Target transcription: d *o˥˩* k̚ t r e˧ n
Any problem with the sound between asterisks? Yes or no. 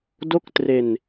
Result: no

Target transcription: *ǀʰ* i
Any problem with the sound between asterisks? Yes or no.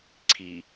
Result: no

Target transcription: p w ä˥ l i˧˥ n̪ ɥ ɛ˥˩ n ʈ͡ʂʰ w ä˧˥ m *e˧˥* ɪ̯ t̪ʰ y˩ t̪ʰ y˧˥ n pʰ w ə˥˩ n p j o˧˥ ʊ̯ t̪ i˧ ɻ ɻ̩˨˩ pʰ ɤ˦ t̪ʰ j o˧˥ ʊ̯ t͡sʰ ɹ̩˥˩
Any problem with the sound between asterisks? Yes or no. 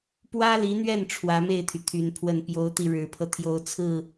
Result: yes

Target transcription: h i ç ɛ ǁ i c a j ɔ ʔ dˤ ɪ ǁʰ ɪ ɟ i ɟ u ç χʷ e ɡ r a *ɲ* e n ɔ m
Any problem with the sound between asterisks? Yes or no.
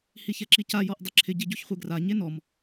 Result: no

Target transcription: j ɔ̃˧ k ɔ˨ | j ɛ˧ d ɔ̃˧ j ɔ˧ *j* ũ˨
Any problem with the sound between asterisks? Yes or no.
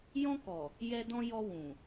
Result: yes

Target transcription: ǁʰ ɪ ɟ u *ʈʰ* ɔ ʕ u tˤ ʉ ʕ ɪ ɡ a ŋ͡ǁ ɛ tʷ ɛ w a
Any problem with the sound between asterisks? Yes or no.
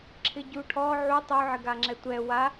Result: no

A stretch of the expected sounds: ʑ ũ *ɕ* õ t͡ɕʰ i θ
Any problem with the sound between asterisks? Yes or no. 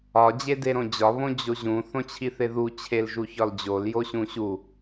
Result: yes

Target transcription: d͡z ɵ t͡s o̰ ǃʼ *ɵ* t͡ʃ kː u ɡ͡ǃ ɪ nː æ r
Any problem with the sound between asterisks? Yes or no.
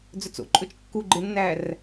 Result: no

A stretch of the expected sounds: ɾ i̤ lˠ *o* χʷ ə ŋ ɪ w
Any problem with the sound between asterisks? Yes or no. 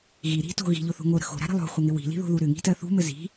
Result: yes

